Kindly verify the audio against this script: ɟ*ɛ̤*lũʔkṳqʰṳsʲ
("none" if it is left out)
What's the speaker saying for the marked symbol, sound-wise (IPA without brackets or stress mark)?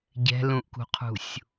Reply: ɛ̤